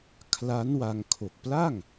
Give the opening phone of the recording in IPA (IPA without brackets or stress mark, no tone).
kʰ